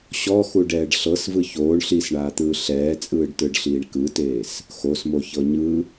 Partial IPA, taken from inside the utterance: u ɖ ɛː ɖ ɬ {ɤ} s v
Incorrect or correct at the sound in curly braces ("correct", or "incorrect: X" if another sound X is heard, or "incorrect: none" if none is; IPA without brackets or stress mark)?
correct